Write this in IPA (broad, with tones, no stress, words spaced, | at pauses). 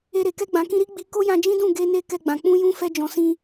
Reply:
e˧ɾe˨ kɛ˧ɡ͡bã˨kĩ˧ ɾi˦ɡ͡bi˧ ko˦jã˧d͡ʒĩ˦dũ˦˨ ɡe˧ ne˧ kɛ˧ɡ͡bã˨ k͡pũ˧jũ˧ fɛ˧d͡ʒɔ̃˨sĩ˧